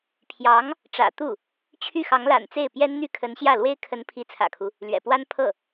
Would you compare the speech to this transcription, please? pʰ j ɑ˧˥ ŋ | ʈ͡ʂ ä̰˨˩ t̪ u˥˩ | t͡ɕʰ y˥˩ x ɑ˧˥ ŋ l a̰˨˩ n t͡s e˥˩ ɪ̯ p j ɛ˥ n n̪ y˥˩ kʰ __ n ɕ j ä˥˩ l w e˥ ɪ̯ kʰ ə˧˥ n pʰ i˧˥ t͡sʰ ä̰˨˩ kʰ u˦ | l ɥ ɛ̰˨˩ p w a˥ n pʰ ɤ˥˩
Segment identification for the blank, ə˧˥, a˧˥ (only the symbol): ə˧˥